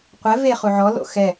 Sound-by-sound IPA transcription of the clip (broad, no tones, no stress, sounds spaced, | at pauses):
qʷ ɛ v e χ u ʕ ɔ l o̰ x ɛ